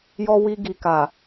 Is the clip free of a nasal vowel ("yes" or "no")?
yes